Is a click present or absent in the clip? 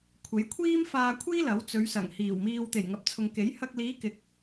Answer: absent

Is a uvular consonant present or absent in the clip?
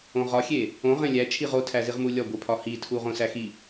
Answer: present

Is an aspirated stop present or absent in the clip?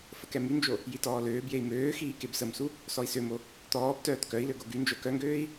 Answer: absent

